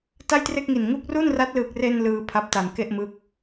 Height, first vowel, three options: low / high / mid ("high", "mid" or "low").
low